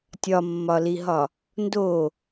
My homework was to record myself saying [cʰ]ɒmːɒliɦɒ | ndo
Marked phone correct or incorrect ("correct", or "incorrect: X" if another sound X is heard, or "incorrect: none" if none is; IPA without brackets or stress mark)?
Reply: incorrect: tʲ